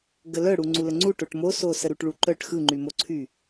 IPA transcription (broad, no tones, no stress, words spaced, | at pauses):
ɡəlœ ɽuŋ͡ǀuləŋ͡ǀu ʈoʈmoso səɾuʈɭuǃœʈ xɯŋ͡ǃymoǀʰy